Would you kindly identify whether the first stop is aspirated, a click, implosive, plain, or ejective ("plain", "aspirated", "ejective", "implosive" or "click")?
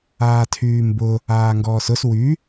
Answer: aspirated